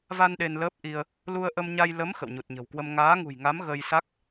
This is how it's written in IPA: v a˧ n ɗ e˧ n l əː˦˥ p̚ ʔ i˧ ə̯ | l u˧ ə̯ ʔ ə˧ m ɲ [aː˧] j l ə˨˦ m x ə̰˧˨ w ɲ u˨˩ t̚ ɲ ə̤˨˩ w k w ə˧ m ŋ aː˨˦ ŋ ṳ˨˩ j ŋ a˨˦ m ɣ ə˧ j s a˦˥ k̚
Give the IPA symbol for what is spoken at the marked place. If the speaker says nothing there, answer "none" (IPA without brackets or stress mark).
a˧